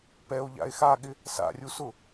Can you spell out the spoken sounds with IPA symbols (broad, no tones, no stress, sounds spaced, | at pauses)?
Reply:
p ɛ o̯ ʎ a̰ e̯ x a ɠ ɪ | s a̰ rʲ u s ʊ